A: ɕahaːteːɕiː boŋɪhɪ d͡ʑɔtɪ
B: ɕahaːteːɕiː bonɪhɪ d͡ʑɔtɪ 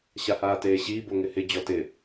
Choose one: A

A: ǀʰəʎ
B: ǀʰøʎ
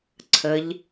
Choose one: A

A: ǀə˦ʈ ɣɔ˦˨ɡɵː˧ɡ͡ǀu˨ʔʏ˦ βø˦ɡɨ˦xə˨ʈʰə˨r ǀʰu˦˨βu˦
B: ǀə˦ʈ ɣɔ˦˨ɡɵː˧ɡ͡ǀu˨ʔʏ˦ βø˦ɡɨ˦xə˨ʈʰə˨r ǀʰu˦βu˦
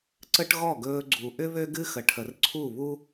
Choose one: A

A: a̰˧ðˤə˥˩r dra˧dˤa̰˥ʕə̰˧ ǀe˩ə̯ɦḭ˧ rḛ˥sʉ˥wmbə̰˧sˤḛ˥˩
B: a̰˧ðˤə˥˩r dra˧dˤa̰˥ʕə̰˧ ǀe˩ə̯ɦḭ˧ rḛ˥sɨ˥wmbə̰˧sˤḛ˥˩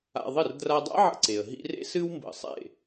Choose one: B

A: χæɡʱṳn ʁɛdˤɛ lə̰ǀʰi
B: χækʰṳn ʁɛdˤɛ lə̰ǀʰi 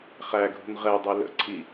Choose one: A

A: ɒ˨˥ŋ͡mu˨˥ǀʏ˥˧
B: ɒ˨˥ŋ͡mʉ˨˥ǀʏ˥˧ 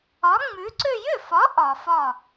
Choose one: B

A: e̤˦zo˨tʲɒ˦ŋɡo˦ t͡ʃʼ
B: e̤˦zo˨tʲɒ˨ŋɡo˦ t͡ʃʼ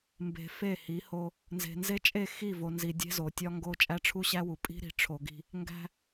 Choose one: A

